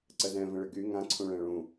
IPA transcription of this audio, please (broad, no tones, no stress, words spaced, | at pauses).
ǀəzɛ̃ və̃ɭɪɡy ŋãǀʰũ ɭɛ̃ɭũ